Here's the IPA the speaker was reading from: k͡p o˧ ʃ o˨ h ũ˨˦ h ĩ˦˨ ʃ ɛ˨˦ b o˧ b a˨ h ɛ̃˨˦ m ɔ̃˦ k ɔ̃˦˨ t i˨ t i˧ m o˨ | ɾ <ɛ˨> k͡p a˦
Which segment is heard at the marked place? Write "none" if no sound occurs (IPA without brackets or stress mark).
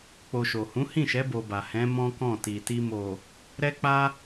ɛ˦